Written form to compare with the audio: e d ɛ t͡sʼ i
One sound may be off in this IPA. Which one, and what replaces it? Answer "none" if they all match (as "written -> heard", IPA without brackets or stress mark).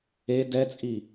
none